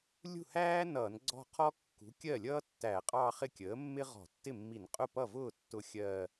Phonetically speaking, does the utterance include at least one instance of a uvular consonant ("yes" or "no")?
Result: yes